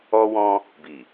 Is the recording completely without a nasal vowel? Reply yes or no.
no